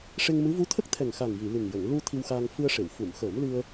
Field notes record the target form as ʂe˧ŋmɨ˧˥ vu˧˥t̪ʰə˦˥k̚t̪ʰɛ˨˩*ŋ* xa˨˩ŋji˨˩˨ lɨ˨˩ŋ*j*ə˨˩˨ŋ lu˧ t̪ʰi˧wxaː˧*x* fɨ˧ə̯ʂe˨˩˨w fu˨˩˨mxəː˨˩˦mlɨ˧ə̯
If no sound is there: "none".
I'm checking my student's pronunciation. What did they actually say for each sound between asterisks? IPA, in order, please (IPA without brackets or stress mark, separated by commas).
ŋ, j, ŋ